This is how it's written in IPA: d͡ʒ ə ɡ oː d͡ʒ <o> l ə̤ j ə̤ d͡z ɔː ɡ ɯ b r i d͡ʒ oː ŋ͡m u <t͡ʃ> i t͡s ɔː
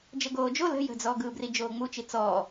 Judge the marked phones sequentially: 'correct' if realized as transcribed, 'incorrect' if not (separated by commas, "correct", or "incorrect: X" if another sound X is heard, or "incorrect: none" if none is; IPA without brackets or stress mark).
correct, correct